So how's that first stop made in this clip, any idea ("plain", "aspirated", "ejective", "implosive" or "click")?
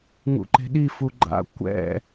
click